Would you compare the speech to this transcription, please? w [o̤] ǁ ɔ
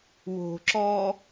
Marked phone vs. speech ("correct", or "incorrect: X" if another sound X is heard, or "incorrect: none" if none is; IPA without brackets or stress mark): correct